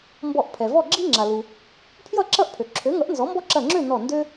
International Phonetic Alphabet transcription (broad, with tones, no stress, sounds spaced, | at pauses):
m b ɔ˧˩ ʔ pʰ ɛ˩ v ɔ˥˨ ɡ͡ǁ i˦ ŋ͡ǁ a˩ l u˩ | pʰ j ʌ˥˨ ǁ ʌ˦ ʔ pʰ ø˩ ǁʰ ø˩˥ ŋ ʌ˩˥ ʔ n z ɔ˩˥ m b ɔ˦ ǁ ɐ˧˩ ŋ͡ǁ ø˥˨ n ɔ˧˩ n d ø˦